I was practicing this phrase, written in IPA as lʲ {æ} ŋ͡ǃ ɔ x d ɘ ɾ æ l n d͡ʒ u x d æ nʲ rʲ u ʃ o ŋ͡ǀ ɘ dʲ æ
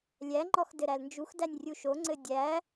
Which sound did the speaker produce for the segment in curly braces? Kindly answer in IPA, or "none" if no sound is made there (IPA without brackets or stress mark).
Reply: æ